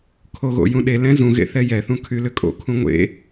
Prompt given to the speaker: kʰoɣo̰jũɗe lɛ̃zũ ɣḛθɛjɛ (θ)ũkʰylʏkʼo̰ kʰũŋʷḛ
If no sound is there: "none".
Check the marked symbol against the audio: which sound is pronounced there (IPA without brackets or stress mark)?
θ